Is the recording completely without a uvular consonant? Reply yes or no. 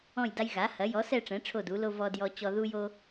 yes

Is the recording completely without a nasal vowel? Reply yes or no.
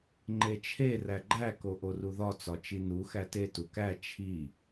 yes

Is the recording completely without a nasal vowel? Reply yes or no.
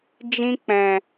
no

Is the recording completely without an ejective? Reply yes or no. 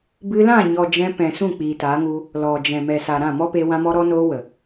yes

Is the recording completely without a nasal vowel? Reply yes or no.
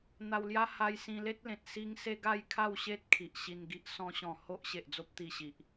no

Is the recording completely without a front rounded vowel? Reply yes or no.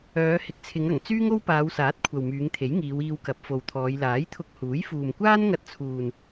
no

